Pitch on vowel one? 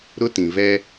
high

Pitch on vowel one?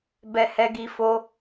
high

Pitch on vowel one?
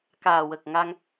low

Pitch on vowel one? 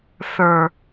low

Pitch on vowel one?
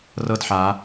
falling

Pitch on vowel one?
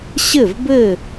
falling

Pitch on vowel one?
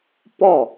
falling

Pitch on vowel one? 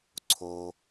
high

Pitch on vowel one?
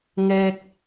low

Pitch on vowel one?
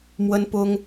high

